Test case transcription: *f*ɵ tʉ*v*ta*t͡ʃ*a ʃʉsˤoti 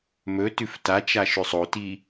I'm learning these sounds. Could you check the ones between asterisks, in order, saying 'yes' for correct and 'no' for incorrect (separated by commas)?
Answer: no, no, yes